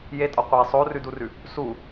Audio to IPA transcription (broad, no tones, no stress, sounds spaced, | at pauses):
j e tʼ ɒ qʷ e sˤ o r ʉ d u r ʉ | s u